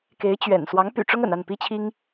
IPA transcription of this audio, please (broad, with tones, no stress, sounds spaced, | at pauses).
k e˧˥ ɪ̯ t͡ɕ ɥ ɛ̰˨˩ n s w ɑ˧˥ ŋ p y̰˨˩ ʈ͡ʂ ʊ˥ ŋ ə̰˨˩ n a˥˩ n p i˥ t͡ɕʰ i˥ ŋ